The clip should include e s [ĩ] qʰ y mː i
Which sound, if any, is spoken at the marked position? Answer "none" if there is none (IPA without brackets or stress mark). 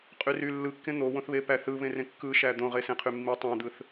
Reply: ẽ